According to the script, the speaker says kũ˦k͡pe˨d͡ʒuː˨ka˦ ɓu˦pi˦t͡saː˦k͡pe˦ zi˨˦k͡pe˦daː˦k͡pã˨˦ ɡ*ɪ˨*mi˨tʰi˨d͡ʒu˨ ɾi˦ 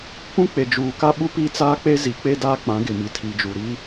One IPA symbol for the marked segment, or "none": ɪ˨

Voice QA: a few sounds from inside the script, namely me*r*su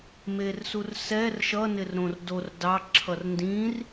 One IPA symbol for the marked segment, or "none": r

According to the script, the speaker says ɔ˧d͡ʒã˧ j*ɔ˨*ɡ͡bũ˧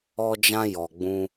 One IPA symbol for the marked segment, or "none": ɔ˨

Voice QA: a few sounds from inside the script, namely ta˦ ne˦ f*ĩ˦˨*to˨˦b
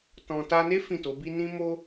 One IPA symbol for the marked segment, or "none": ĩ˦˨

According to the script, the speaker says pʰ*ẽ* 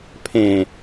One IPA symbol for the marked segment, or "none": ẽ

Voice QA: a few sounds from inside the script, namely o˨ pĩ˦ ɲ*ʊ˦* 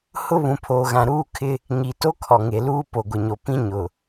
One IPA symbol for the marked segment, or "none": ʊ˨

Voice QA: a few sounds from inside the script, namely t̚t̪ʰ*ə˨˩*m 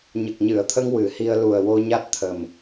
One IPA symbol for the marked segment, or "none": ə˨˩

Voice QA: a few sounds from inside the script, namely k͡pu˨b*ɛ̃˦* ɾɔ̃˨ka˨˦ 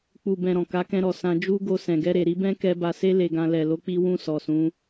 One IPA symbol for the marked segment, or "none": ɛ̃˨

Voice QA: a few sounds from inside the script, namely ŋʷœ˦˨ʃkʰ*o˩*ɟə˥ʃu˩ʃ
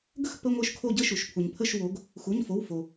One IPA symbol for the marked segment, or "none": o˦˨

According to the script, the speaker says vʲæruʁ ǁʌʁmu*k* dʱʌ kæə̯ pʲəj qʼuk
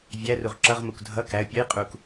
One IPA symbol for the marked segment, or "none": k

